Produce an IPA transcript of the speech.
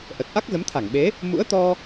ʔ ə˨˩ t̚ ʔ a˦˥ k̚ z ə˨˦ m t̪ʰ a˧˩ ŋ ɓ e˨˦ | m ṵ˧˥ ə̯ t̪ ɔ˧

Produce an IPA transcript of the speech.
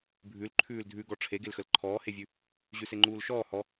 bʱ ʉ l ǃʰ ʉː l dʱ ʉ ɡ ɔ ʈ͡ʂʰ e ɡ e l x ə l ǃʰ ɔː h e vʲ ʉ | ʑ ʉ s e ŋ͡ǃ uː l ʃ ɔː h ɔ

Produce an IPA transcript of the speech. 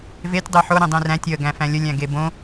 v e tʲ dˤ i ħ o ɾ ĩ dˤ ĩ r æ̃ tʲ ə ɡ æ̃ f æ̃ lʲ ə lʲ æ̃ ɡ e b õ

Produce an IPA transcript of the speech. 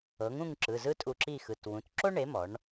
ɤ˩˥ ŋ ũ˥˨ ŋ ǁ ɯ˩˧˩ z ɯ˥ tʼ u˧ ǁ i˥˨ x ɯ˩˧˩ t w ũ˩˧˩ t ǁ o˥ ɳ e˩˥ m ɔ˩˥ ɳ

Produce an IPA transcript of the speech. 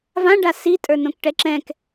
v ã ɖ a s i tʼ ə˞ n õ k ʈ ɛ ǁ ɛ̃ k

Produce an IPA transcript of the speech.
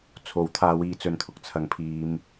t͡sʰ o˨˥ w t̪ʰ aː˧ w iː˧ t͡s ɵ˧ n t̪ʰ ʊ˧ k̚ t͡sʰ ɐ˨ ŋ pʰ iː˨ m

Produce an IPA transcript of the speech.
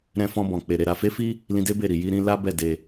ɾ ɛ̃˦ f ɔ̃˦ b ɔ̃˧ k͡p e˧ ɾ e˧ ɾ a˧ f e˦ f i˦ | l ĩ˧ d e˦ b e˦˨ ɾ i˧ j i˦ ɾ ĩ˦ l a˦ b ɛ˦˨ d e˧

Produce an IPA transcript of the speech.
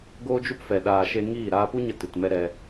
ɡ oː˦ d͡ʒ u˦ p f ɛ˨ ɗ aː˨ ʃ e˧ ŋ iː˦˨ ɾ aː˧ p u˦ ɲ ə˧ t ɨ˨ t m ɛ˦ ɾ ɛ˧

